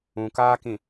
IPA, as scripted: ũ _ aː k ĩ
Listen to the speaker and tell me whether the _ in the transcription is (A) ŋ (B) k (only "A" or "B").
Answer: B